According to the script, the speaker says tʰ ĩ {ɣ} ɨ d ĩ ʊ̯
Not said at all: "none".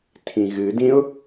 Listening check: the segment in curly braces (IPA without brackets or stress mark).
ɣ